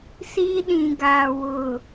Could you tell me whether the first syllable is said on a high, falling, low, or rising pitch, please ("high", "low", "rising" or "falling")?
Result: high